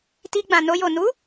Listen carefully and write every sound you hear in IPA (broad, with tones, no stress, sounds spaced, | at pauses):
t i˧ ɡ͡b ã˨ n o˧ j o˨ n u˨˦